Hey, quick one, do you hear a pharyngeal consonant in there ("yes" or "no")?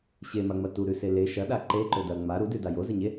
no